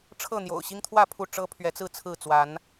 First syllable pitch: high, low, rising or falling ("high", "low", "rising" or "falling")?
falling